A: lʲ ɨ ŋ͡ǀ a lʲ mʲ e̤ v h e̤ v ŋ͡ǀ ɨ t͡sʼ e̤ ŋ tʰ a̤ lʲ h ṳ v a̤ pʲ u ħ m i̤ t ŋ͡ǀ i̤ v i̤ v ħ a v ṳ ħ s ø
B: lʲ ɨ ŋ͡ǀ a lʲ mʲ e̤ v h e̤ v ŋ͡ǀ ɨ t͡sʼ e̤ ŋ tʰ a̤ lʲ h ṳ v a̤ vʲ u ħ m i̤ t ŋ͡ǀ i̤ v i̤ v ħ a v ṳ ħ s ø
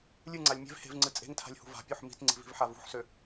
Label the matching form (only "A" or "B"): A